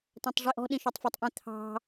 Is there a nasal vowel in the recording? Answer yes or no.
yes